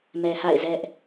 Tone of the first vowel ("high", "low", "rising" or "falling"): low